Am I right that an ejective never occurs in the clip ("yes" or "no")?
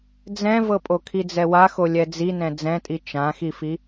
no